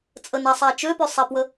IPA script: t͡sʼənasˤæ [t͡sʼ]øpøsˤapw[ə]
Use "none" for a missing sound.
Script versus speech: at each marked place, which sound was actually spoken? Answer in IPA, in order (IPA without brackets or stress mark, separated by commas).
t͡ʃ, ə